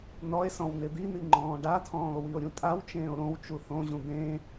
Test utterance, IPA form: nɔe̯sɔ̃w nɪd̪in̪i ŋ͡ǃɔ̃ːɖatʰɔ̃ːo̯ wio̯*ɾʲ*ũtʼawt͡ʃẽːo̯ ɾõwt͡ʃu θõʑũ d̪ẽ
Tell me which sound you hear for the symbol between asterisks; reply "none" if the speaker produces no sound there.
ɾʲ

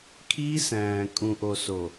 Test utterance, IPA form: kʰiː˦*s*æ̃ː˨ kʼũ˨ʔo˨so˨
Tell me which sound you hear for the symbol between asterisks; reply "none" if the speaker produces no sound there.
s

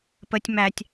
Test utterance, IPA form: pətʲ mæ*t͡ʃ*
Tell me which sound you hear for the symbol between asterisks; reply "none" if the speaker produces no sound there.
tʲ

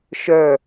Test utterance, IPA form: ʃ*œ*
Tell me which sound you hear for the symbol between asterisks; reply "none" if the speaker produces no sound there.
œ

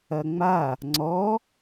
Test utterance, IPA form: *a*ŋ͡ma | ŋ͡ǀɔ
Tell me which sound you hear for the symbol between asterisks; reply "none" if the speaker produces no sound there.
ɐ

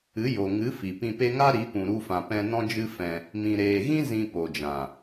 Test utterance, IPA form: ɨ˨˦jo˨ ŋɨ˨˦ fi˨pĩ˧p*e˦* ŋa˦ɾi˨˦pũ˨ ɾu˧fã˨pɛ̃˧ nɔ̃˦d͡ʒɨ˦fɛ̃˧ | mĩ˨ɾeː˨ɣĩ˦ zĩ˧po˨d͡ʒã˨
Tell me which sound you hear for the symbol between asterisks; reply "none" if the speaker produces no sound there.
e˦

